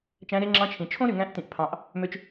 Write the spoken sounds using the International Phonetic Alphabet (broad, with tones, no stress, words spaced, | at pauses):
t͡ʃæ̃˧˥ɾe˧˥ŋ͡ǁɑ̃˧˥t͡ʃʰĩ˩ t͡ʃʰõ˥ɾy˩ ŋæ̃˧˥ʔtĩ˩ʔpʰɑ̃˩˧ʔ | mø˧t͡ʃ